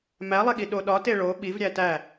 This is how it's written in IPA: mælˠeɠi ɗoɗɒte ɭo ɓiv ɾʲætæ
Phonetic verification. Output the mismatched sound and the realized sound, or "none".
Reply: none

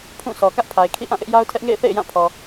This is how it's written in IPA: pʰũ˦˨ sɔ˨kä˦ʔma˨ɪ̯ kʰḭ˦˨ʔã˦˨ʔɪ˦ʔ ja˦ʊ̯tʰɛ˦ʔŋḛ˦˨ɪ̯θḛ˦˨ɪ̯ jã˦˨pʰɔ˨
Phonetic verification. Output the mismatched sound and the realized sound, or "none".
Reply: m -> pʰ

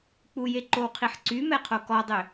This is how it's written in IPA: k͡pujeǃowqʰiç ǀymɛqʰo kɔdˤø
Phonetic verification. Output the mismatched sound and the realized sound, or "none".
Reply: ç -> ħ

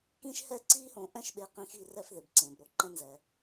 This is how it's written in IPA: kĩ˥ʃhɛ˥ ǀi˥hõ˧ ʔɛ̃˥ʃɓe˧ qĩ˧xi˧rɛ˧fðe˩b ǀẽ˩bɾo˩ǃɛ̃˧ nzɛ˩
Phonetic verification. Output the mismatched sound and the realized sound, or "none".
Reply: none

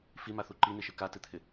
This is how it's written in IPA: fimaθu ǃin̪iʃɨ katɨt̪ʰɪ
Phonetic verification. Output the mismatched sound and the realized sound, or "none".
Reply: none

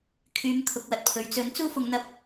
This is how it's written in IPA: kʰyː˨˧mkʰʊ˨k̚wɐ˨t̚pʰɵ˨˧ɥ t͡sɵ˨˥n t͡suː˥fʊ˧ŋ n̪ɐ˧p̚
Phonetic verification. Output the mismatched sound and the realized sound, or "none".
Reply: none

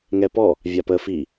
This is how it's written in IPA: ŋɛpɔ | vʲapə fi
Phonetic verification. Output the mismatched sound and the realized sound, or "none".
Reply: none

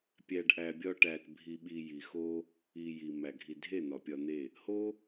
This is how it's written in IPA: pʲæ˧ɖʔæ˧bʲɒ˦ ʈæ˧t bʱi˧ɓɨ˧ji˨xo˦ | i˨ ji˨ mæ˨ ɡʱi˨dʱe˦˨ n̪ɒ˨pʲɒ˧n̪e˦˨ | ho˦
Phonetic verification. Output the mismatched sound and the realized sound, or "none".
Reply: ɨ˧ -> i˧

